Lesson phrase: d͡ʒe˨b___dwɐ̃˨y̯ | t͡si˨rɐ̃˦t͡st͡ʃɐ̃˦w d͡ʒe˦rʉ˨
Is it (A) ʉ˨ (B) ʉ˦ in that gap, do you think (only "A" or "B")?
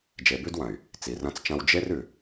B